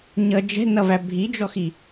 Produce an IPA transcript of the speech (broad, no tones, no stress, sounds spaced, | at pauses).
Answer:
ɲ ʌ d͡ʒ ɛ̤ n ʌ v æ bʱ i d͡ʒ ɔ x i